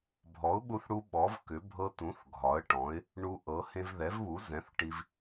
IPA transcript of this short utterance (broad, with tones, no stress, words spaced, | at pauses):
bʱɔ˩˥ʊ̯ɓu˧θɽu˧ ɓɔ˩˥vkʏ˩˥ bʱɤ˧t̪ũ˩˥θ ɡʱɒ˩˥ə̯ʈɔ̃˩˥ɪ̯ | ɳu˧ʔɤ˩˥ hẽ˧vðɛ˩˥vβu˩˥ zɛ̃˩˥θ ʈi˧v